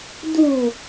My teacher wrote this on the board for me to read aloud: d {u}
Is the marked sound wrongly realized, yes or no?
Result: no